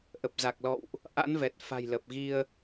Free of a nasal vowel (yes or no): yes